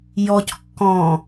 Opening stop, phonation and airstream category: plain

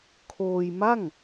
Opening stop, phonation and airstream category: aspirated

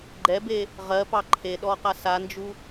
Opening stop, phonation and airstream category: click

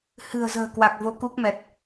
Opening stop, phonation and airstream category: plain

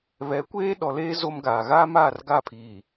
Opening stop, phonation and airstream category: plain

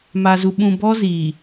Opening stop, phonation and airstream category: implosive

